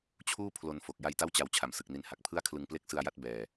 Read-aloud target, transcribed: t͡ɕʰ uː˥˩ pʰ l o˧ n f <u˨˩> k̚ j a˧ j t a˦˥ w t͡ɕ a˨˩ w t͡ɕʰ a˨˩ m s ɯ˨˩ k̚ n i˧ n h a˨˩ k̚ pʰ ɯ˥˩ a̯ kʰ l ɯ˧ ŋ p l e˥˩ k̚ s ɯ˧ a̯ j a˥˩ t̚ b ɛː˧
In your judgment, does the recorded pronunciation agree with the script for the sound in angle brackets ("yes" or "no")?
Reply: no